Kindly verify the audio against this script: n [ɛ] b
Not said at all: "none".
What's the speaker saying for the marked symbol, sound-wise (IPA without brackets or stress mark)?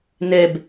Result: ɛ